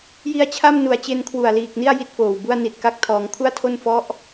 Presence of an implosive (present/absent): absent